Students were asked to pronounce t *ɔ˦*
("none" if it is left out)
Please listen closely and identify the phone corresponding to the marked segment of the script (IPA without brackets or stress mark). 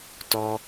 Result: ɔ˦